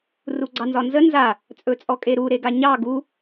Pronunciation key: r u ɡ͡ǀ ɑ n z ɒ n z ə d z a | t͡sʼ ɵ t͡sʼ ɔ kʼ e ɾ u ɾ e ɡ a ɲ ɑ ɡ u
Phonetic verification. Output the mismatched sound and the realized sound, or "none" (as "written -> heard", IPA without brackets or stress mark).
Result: d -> n